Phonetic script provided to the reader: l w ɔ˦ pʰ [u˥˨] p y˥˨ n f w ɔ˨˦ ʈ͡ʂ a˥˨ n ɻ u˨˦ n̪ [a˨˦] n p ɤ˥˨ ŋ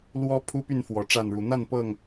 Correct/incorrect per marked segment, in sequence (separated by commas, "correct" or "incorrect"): incorrect, incorrect